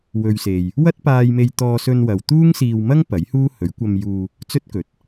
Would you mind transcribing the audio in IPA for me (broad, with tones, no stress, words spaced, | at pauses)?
wɵ˨ɥse˨j | wɐ˥t̚paː˧jme˧j t̪ɔː˧sɵ˧nwɐ˨w t̪uː˥ŋsiː˧wmɐ˥ŋ pɐ˨˥jhuː˥hɵ˨˥ɥ kʷɐ˧mjuː˧ | t͡sɵ˥t̚kɵ˨˥t̚